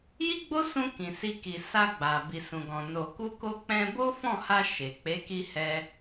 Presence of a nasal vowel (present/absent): present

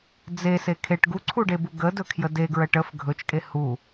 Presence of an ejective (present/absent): present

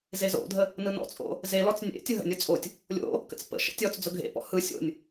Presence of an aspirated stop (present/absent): absent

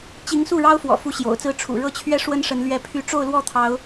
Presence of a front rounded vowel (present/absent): present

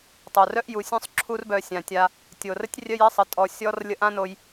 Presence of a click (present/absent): present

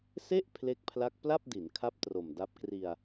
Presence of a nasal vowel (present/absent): absent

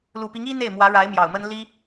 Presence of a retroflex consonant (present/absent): present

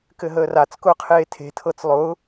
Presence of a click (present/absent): absent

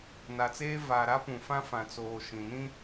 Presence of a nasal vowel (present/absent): present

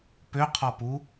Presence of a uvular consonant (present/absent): present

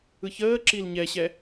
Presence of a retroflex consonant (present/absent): absent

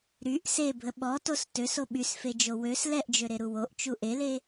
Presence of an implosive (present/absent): present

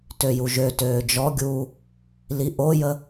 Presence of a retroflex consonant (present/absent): absent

